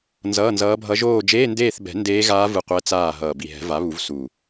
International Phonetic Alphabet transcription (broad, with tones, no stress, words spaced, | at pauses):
nzʌː˧˥˧nzʌː˧˥bʱʌ˧˥ ʒoː˦˨d͡ʒeː˧˥˧ndeː˦˨θbɛ̤˨˩˦ ndeː˧˥ɣaː˧˥ vɯ˦˨qʷɛ˧˥t͡saː˦˨ ɦʌː˨˩bi˨˩ɦɛ̤˨˩˦ va˩˥βu˨˩˦v su˨˩